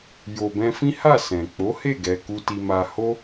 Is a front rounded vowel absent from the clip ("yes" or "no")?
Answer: yes